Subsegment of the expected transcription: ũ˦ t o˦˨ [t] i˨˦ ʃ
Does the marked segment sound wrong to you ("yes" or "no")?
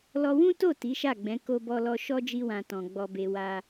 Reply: no